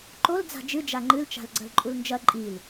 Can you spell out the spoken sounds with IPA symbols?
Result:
ǃ o l d͡z a̤ d͡ʒ ɨ d͡ʒ a ŋ͡ǃ ɨ l t͡ʃ a̤ l ɡ͡ǀ ɐ l ǃʼ u l n d͡ʒ ɐ ǃʼ i l

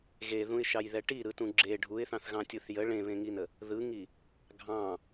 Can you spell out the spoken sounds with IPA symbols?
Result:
ɣ e ð ũ ɪ̯ ʃ ɑ j ð ɛ ʈ i ɾ ɯ t ũ ɡ͡ǁ e ɖʱ u ɪ̯ θ ɑ̃ θ ɣ ɑ̃ tʲ u θ j ə ɭ ẽ β ẽ ŋ i n ə | ð ɯ ŋ i | ɡʱ ɑ̃

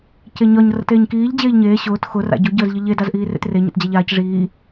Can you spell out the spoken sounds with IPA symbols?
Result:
c e ɲ ɒ ɲ r ə̰ t eː ɲ k iː ʎ d͡ʑ eː ʎ ɲ eː ɕ ʊː t x ʊ r a̰ ɟ ʊ ɟ əː z ʎ ə ʎ e d a z ʔ iː r ḛ t r e ɲ ə̰ t d͡ʑ a ʎ aː c ʐ iː

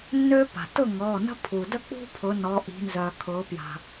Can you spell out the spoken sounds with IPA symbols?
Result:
nː øː˦ p a̤˩ t ʊ˥˨ ŋ ɔː˩˧˩ n ə̤˦ pʰ u˩ d ə˥˨ k͡p ṳ˦ pʰ ʊ˩˧ n ɔ˩˧ ʔ i̤˩˧ n z œ˩ kʰ ʊː˩˧ p j a̤˩

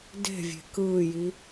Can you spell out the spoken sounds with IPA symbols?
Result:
d e̤ vʲ e̤ k ɯː j i

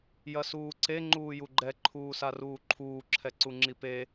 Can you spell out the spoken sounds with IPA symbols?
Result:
j ɐ s uː ǀ e ŋ͡ǃ uː j u ɡ͡ǃ ɛ ǃʰ uː s a r uː ǃʰ uː ǁʰ ɛ ǀ u ŋ͡ǁ i p e

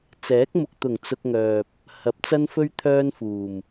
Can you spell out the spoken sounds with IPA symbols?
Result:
t͡s ɛː˨˥ k̚ m ʊ˨ k̚ t̪ ʊ˨˩ ŋ t͡s ʊ˧ k̚ ŋ œː˨ p̚ | h ɐ˨˥ p̚ t͡s ɐ˥ n f ɵ˥ ɥ t̪ʰ œː˥ n f uː˨˩ m

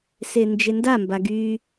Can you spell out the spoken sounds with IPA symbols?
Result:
s e n d͡ʒ e n d a m b a ɡ y

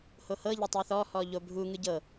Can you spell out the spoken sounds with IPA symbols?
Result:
h o h ɤ ʎ e tˤ ɛ θ ɔ h ɔ ʎ o bʱ u ŋ ɯ ɟ ɤ

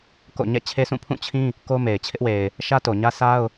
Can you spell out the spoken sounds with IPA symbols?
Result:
k o̰˦˨ ɲ ɛ̰˦˨ t͡ɕʰ e˦ sʰ ũ˦˨ pʰ ũ˦˨ t͡ɕʰ ĩ˦ | k o˦ m e˨ ɪ̯ t͡ɕʰ ɪ˦ ʔ w e˨ ɪ̯ | ʃ ä˦ t o˨ ɲ ä˦ s a˦ ʊ̯

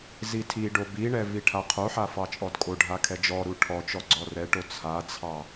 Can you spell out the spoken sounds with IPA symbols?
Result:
z i tʰ i ɖ o b i ɳ ɛ v i ʈʰ a qʰ o ħ a f ɑ t͡ʃʼ ɔ d kʼ o ɖʱ a kʰ ɛ d͡ʒ ɔ ɾ u ʈʰ ɔ t͡ʃ ɔ ɡ͡ǀ ɔ r ɛ ʈ o t͡sʰ a t͡sʰ ɑ

